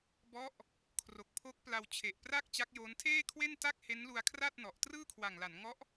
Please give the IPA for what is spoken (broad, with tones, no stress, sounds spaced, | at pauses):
b ɔ˦˥ ʔ | kʰ r o˨˩ k̚ pʰ o˦˥ k̚ p l a˧ w t͡ɕʰ e˨˩ ʔ p r a˥˩ k̚ t͡ɕ a˦˥ k̚ j oː˦˥ n tʰ eː˥˩ kʰ w e˥˩ n t a˥˩ k̚ h e˦˥ n l u˧ a̯ kʰ r a˥˩ t̚ n ɔ˨˩ ʔ t r ɯː˥˩ kʰ w a˨˩ ŋ l a˩˦ n ŋ ɔ˦˥ ʔ